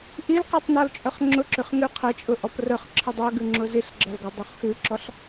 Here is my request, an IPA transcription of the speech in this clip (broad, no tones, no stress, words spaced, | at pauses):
ʔilqɔtˤ nɔlt͡ʃʼœχŋ͡ǁʊǁʉχ ŋʉqʰət͡ʃʼʊ ʔɔprœχǁʰə dˤœɡʉ ŋ͡ǁʊziɬɡ͡ǁɐl ɡɐdˤuχxʉǁɔɬ